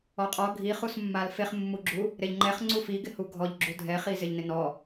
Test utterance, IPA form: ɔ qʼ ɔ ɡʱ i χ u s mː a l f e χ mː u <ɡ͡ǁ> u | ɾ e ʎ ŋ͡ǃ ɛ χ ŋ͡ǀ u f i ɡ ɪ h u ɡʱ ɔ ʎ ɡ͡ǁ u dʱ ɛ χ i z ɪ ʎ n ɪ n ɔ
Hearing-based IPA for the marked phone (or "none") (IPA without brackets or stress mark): ɡ͡ǁ